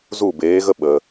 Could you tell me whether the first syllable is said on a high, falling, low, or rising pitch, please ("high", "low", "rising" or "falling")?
falling